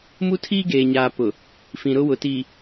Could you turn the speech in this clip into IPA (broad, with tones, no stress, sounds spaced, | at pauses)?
m u˦ tʰ iː˦ ɡ eː˨ ɲ aː˨ p ʊ˨ | f ĩ˨ ɾ ʊ˦ w ʊ˨ t iː˨